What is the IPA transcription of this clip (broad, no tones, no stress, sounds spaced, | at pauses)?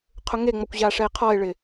qʰ ʊ ŋ e ŋ͡m ɔ kʷ ʑ a ʂ ɛ e̯ qʰ ɔ e̯ ɭ ɪ